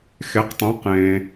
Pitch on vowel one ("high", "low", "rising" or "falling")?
rising